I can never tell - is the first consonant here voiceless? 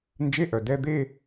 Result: no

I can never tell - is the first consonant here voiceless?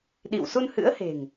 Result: no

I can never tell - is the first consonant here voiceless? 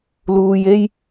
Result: no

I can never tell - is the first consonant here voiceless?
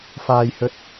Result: yes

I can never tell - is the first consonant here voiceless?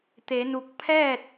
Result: yes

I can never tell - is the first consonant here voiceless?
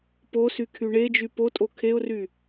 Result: yes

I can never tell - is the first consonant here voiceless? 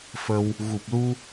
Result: yes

